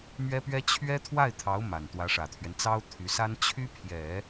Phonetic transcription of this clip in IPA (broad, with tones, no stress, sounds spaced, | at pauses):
m ɥ ɛ˥ p ɥ ɛ˥ t͡ɕʰ ɥ ɛ˥ t̪ʰ w a˥˩ ɪ̯ t̪ʰ ɑ˧˥ ʊ̯ m a˨˩ n t̪ w ä˧˥ ʂ ä˨˩ t̪ʰ ɥ ɛ˦ n t͡s ɑ˥ ʊ̯ t̪ʰ y˧˥ s a˥ n t͡ɕʰ y˥ pʰ j ɛ˨˩˦